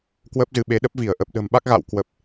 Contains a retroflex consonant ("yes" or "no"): no